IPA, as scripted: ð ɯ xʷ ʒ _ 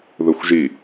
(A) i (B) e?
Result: A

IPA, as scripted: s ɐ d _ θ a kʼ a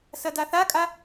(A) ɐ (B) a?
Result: B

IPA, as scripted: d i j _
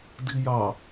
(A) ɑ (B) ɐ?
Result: A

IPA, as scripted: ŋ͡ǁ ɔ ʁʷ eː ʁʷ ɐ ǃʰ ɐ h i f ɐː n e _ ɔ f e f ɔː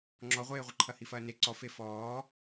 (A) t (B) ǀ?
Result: B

